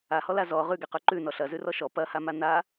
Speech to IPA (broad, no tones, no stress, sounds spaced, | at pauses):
a h ɔ l a z ɔ ʁ ʉ ɡ ɛ q ʉ ǃ ʉ n ɔ ɬ ɐ z ʉ r ɔ ʃ ɔ p ɐ h a m a n a